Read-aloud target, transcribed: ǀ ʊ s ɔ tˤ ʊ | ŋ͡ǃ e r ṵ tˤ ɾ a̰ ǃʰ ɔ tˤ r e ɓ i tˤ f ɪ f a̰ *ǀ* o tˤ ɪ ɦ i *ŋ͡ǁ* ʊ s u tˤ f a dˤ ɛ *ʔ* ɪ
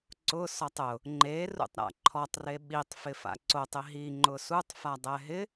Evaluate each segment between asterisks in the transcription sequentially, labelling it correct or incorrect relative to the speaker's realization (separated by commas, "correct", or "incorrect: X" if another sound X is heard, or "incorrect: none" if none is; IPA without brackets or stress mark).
correct, incorrect: ŋ͡ǃ, incorrect: ɦ